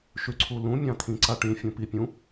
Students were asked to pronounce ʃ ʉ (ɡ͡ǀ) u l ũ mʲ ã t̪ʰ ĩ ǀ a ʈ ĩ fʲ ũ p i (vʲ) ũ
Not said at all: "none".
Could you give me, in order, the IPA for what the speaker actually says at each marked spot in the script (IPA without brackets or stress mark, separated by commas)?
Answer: ǀʰ, pʲ